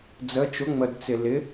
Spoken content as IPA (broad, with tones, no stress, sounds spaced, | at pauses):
d͡z ə˧˥ t͡ʃ ʊ˧˥ ŋ͡m ə˧ d t͡s ɪ˧ l ɪ˧˥